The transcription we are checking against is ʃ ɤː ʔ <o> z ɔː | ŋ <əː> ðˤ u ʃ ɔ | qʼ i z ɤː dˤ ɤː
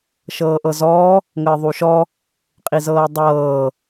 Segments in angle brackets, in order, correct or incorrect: incorrect: ɤ, correct

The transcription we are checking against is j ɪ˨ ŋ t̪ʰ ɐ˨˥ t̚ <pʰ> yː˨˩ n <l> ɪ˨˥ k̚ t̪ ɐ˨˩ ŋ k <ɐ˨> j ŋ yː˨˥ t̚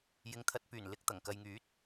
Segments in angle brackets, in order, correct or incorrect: incorrect: p, correct, correct

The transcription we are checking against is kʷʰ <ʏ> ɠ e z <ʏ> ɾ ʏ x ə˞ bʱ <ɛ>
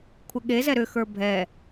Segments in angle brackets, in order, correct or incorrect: incorrect: ɪ, incorrect: ɛ, correct

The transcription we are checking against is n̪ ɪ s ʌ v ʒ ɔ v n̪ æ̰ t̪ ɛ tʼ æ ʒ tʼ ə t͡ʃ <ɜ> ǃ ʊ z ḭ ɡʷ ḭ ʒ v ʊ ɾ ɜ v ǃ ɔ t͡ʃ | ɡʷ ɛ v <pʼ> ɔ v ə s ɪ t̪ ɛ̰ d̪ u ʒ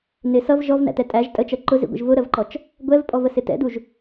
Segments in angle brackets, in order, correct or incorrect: correct, correct

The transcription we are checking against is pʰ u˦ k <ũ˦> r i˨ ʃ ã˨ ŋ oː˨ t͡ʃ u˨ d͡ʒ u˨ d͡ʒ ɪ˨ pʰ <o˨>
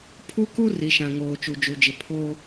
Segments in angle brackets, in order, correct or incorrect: incorrect: u˦, incorrect: o˦

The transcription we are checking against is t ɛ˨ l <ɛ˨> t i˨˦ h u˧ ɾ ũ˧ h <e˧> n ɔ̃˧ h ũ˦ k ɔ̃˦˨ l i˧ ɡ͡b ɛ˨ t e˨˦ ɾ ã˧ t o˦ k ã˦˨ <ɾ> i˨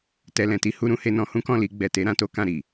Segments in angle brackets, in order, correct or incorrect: incorrect: ɛ̃˨, correct, correct

